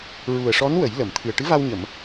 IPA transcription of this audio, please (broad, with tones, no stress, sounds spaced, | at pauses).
ɹ u˨˩ ə̯ ʂ ɔ˧˥ n w ə˨˩˦ j l ə˨˩˨ m t̪ʰ ɨ˨˩ ə̯ ʈ ɨ˧˥ v a˧ w ɲ ə˨˩˨ m